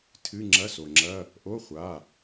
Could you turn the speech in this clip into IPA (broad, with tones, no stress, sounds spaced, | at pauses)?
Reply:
tʰ ɨ˧˥˧ ŋ͡ǁ ɐ˧˥˧ s o˩ ŋ͡ǁ ɐ˧˥˧ | ʔ o˧˥˧ χʷ a˩˧˩